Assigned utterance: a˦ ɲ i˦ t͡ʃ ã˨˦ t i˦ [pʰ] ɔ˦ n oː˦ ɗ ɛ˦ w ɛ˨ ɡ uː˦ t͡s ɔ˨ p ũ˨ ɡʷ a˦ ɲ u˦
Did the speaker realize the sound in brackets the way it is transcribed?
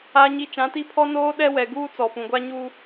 yes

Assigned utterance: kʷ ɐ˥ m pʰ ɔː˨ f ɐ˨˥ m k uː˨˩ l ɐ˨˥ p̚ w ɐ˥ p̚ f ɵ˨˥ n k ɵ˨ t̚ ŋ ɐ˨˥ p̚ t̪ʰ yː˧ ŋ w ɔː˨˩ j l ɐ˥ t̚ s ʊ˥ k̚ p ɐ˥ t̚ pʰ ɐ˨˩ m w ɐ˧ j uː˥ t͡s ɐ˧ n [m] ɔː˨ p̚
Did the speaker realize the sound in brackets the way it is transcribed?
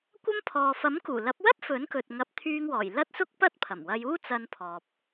no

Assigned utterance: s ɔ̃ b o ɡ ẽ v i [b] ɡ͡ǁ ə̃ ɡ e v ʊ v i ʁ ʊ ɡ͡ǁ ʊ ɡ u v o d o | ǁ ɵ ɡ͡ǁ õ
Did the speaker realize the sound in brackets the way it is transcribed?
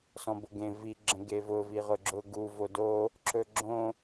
no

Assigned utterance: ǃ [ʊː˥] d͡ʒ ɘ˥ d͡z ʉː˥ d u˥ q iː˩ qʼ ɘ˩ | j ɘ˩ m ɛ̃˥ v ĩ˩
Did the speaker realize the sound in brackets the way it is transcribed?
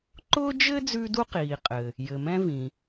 yes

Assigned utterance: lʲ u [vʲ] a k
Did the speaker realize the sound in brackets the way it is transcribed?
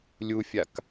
no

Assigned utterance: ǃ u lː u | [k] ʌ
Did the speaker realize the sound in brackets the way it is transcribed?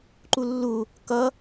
yes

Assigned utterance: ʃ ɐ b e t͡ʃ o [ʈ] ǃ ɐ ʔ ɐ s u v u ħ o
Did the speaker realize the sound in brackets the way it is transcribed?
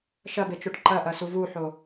yes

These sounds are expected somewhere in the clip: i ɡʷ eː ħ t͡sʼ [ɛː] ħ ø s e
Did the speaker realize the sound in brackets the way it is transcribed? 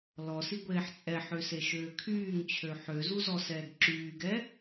no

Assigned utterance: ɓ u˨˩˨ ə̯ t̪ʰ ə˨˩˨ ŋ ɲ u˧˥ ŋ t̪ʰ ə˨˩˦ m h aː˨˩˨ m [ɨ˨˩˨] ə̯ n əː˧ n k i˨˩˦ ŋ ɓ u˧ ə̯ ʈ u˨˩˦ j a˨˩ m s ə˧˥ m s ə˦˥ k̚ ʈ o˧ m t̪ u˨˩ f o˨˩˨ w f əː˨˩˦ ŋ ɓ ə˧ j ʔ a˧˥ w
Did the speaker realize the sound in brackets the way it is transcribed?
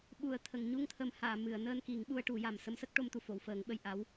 yes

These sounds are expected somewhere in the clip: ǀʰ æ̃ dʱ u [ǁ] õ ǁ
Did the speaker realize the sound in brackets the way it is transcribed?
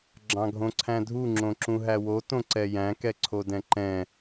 no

